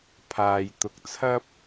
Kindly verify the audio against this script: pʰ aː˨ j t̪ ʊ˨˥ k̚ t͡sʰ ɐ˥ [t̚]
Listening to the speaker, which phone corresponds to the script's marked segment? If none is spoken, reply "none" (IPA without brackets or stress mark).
p̚